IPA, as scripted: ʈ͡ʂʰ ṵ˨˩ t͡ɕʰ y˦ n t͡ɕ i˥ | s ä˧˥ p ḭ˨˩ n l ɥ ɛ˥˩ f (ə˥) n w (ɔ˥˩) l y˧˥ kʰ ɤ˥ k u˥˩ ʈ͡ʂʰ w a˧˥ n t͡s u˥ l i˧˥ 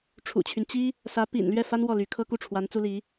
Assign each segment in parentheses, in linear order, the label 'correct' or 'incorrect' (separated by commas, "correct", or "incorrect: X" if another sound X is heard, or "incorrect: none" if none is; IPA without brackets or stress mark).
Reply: incorrect: a˥, correct